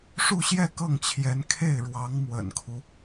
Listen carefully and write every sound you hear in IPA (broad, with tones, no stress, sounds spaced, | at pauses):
ʂ u˥˧ ɕ j ɛ˥˧ k ɤ˥˩ ŋ t͡ɕʰ j ɛ˧˥ n kʰ e˥˩ ɪ̯ ɻ w ɑ˧˥ ŋ m w ə̰˨˩ n kʰ u˦